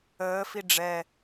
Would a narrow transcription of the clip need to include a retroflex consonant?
yes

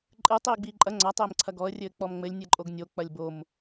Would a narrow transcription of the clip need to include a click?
yes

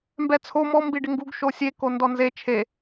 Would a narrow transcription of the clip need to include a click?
no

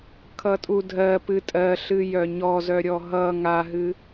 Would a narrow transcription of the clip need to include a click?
no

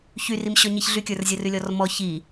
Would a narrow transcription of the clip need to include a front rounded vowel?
yes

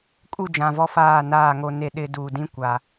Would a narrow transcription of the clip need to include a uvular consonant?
no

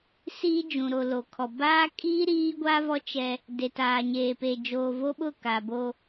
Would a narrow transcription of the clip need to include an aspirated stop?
yes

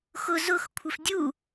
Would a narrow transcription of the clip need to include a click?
no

